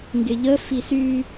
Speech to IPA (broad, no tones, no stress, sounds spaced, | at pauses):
ŋ ɡ ɪ ʎ ə f i s y